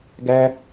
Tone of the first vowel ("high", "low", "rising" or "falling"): high